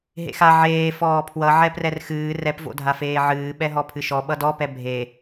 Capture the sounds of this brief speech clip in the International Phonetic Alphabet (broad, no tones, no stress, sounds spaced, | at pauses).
ɦ ḛ x a ʕ eː f ɔː pʰ w ʌ ʕ ɛ p r ɛ r x ɨː r ɛ p v o̰ dʱ a f eː ʕ ɨː ɓ ɛ ɦ ɔ pʰ ɨ ʃ ɔ ɓ ʌ d ɔ p ɛ bʱ e